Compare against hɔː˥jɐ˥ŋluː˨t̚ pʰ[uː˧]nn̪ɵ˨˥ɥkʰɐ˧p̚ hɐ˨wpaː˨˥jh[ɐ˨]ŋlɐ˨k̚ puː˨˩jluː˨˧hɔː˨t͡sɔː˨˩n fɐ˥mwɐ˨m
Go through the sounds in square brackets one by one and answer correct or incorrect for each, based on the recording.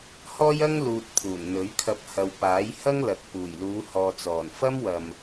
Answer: incorrect: uː˨˩, incorrect: ɐ˥

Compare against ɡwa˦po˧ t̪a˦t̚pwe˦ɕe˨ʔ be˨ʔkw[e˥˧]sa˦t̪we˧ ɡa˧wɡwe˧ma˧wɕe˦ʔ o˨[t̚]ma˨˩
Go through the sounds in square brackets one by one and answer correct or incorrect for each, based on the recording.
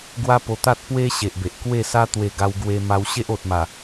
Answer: correct, correct

